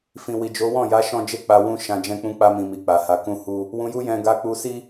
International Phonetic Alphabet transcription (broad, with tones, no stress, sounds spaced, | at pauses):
f ĩ˨ w i˨ d͡ʒ o˨˦ w ɔ̃˦˨ j a˨˦ ʃ ɔ̃˦ d͡ʒ e˦ k͡p a˧ w ũ˦ ʃ ã˧ d͡ʒ ɛ̃˦ k͡p ũ˦ k͡p a˧ m ĩ˨ m i˨ k͡p a˨ h a˨˦ k ũ˦ h u˦ | w ũ˧ j u˦ j ɛ̃˧ ɡ a˧ k͡p u˧ s i˦